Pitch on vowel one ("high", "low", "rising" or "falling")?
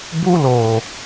high